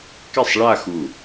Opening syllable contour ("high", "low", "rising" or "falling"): falling